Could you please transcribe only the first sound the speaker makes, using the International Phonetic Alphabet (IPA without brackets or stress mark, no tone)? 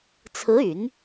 t͡sʰ